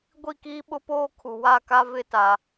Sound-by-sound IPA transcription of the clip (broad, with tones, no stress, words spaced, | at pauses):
ɡʷi˦˨kiː˦ɓʊ˦poː˦ kʰu˨ wa˦˨ka˦vɪ˦˨ta˨